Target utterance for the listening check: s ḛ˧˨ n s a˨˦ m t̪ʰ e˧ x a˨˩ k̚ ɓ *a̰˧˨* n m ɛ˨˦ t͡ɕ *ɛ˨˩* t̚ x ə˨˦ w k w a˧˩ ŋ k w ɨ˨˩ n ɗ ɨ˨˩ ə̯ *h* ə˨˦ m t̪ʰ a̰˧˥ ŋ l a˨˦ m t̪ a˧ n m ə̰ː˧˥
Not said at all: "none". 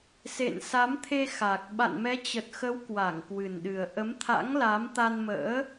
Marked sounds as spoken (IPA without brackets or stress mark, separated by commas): a̰˧˨, ə˨˩, ʔ